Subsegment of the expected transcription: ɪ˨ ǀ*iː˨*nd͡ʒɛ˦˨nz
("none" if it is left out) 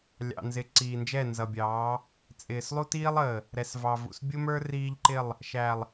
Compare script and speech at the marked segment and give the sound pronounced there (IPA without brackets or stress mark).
iː˨